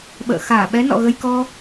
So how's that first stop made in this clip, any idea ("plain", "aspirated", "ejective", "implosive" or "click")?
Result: implosive